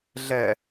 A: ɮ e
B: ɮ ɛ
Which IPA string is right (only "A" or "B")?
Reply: B